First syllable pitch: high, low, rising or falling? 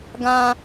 high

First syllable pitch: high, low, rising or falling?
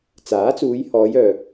rising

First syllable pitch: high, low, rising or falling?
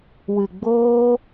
low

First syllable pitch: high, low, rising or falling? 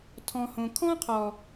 low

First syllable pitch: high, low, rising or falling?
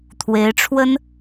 rising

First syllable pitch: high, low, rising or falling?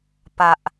low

